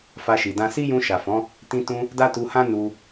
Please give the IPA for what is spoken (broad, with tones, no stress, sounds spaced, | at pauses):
f a˧ ʃ i˨ d ã˧ s i˦ j ũ˧ ʃ a˨ f ɔ̃˨˦ | t ĩ˧ t ũ˧ | d a˦ t u˧ h ã˦ n u˧